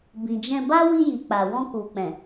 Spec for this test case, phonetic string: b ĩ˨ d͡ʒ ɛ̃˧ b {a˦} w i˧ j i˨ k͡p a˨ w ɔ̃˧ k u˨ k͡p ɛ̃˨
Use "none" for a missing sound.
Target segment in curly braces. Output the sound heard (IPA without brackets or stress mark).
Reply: a˦